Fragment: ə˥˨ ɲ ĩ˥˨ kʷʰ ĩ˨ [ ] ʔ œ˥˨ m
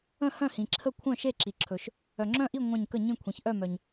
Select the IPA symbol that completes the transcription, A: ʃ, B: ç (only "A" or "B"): B